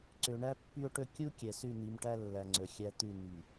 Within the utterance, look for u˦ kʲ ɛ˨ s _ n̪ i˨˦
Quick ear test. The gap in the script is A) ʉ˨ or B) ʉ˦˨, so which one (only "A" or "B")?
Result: B